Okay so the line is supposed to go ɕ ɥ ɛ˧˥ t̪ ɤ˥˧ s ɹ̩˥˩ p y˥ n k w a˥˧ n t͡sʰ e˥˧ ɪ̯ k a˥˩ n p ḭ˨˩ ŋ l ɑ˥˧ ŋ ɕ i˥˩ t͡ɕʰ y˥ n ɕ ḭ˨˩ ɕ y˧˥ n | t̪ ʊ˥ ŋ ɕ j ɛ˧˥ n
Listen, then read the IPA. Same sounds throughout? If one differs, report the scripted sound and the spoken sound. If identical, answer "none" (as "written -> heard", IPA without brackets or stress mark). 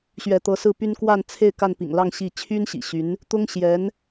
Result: ɤ˥˧ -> ɤ˧˥